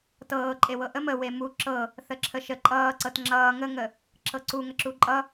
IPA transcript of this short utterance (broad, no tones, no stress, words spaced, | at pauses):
tɤːǃʼewɤ ʔəm ə wemu ǁʰɤ | θəǁʰəʃə ǃʼʌːǀɤt ŋ͡ǁʌː ŋəŋə | ǁʰɤǀu ŋəǁuǃʼʌ